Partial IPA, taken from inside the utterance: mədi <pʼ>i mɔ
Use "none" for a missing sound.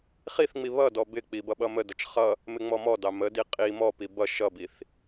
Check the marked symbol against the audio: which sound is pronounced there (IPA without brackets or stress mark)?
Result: qʼ